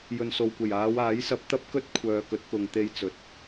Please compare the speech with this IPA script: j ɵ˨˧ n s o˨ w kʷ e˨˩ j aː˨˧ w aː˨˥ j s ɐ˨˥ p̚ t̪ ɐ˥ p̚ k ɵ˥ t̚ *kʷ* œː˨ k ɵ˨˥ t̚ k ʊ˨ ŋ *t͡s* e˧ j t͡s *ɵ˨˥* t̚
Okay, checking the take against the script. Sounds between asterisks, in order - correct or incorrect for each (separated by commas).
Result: incorrect, incorrect, correct